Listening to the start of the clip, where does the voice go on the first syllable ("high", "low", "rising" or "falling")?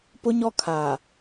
high